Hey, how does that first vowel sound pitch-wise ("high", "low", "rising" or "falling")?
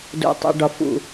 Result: low